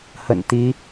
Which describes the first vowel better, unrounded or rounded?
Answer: unrounded